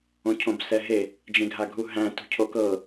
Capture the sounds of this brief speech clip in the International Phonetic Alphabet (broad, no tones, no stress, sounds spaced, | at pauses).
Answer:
õ cʰ õ b s ɛ ɦ e | d͡ʒ ẽ ɡʱ a ɡʱ u ɦ æ̃ t ṳ cʰ o k ɤ